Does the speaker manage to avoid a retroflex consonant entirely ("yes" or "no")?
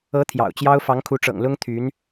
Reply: no